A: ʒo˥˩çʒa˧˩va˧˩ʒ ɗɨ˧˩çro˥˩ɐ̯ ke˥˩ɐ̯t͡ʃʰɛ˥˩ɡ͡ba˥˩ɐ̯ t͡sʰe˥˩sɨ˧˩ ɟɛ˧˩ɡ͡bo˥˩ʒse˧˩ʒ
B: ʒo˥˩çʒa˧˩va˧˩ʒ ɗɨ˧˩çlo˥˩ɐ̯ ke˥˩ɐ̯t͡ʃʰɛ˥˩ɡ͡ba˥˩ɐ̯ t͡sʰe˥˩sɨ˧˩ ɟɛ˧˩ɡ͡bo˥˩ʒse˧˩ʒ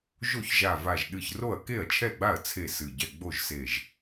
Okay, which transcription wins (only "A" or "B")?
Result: A